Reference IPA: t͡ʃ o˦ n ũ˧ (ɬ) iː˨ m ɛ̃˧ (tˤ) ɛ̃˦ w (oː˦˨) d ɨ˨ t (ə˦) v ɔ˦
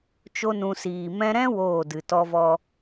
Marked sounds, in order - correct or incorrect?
incorrect: s, incorrect: ɾ, correct, incorrect: ɔ˦

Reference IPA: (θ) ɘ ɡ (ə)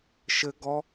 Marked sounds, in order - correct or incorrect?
incorrect: ʃ, incorrect: ɔ

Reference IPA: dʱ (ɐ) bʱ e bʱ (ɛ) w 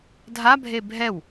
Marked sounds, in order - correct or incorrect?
incorrect: a, correct

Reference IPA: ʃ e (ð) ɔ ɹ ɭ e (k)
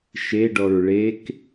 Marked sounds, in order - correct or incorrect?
incorrect: ɖ, correct

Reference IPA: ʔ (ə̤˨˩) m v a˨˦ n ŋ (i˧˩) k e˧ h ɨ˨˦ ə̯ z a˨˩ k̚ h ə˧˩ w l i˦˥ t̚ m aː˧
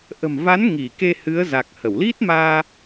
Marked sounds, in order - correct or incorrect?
correct, correct

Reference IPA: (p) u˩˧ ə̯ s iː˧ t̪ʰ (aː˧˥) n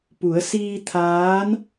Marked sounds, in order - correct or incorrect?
correct, correct

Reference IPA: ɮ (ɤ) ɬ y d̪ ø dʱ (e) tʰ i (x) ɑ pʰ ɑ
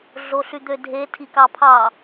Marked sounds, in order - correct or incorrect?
incorrect: o, correct, incorrect: k

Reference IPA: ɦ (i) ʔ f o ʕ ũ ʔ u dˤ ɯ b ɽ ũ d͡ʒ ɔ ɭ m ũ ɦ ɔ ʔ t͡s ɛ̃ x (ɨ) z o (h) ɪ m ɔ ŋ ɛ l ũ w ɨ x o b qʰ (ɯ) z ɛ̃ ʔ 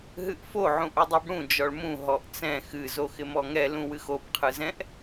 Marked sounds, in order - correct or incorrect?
incorrect: ɨ, correct, incorrect: x, correct

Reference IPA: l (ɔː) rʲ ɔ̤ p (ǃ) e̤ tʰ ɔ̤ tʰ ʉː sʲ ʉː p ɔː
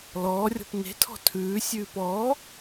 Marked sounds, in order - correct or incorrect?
correct, incorrect: n

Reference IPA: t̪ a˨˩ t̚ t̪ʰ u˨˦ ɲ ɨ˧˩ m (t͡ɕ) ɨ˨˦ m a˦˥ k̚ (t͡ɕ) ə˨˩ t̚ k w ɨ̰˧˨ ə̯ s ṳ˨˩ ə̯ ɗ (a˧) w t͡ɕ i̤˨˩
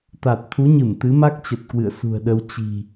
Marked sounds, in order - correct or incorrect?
incorrect: t̪, correct, incorrect: ə˧

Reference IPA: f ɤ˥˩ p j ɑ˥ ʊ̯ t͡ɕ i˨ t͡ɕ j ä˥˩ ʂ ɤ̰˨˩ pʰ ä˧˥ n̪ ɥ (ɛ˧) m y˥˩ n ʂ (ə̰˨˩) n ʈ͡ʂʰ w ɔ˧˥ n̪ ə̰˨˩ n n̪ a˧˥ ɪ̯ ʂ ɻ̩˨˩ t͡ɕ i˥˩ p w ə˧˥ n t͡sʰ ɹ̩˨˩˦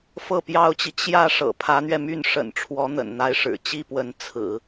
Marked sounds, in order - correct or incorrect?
correct, correct

